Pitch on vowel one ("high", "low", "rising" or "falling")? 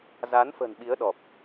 rising